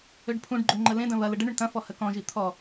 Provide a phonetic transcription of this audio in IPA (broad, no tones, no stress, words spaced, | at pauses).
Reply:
øɖpʰũɖɡ͡ǃø ŋ͡ǃəlẽdɐ̃ βɐlə ɖəɳʏɳ tɐ̃ fɔhəkɔ̃ʒi t̪ʰɔ